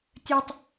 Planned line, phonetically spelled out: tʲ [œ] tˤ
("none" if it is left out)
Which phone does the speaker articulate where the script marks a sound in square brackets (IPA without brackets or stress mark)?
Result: œ